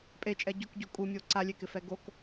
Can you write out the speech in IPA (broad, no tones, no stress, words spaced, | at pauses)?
pʼet͡ʃʼɛ ɟʊkɟo kʼumʲo ǀalʲekɪfɛ ɡok